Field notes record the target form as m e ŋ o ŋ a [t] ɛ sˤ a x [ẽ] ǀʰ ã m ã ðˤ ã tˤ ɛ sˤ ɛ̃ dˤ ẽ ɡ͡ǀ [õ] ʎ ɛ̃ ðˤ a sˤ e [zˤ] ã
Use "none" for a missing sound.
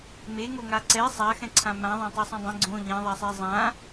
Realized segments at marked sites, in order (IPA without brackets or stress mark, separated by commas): ǀ, ɛ̃, õ, zˤ